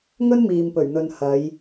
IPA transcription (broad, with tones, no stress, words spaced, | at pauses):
ŋɵ˥nmiː˨mpɵ˨˩ɥn̪ɵ˨n hɐ˨˧j